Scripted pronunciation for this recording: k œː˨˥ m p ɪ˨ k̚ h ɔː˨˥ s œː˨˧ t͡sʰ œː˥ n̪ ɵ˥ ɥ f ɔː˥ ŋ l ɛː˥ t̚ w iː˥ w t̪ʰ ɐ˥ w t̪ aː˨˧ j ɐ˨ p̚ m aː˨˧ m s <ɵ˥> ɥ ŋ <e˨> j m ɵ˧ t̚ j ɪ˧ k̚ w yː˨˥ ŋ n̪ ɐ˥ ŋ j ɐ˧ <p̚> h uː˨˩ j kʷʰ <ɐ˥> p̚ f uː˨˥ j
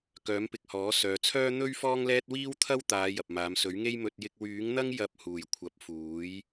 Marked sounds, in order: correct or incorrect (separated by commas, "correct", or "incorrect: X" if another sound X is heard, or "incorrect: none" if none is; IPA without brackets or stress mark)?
incorrect: ɵ˨˥, incorrect: e˥, correct, incorrect: ɐ˨˥